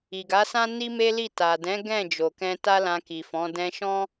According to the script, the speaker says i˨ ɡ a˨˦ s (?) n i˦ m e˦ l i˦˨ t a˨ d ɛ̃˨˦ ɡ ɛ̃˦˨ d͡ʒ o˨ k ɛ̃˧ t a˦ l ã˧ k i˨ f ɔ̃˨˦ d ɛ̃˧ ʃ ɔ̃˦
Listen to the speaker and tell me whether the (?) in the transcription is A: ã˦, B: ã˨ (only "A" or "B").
A